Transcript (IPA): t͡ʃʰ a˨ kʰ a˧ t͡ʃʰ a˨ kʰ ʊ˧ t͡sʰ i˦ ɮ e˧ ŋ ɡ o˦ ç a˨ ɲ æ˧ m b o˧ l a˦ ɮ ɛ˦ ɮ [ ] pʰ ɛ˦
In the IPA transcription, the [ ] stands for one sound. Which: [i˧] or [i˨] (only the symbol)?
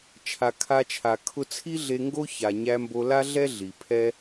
i˨